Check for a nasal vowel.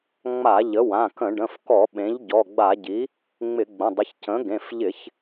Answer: present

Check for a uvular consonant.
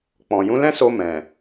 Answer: absent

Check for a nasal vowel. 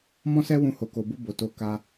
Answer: present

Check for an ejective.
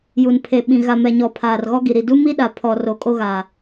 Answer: present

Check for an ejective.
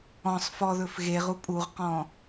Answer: present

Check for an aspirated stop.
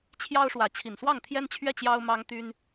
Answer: present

